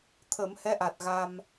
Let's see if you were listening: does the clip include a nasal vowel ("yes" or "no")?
no